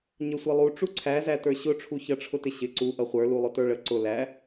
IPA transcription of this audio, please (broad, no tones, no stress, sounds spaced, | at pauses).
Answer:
ɲ ə sʷ ʌ lˠ u ʈ͡ʂ u ǀʰ æ z æ t ə˞ ɕ ʊ ʈ͡ʂʰ u ç ʌ ʈ͡ʂʰ ʊ t ɪ ɕ ɪ ǀ u ʔ ʌ χʷ ə˞ l u lˠ ʊ t ə˞ ɭ ə ǀ ʊ l æ